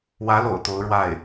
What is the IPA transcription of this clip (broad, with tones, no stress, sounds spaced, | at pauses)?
w ä˧˥ l o̰˨˩ ʊ̯ t̪ o˧˥ ʊ̯ ɻ w a˥˩ ɪ̯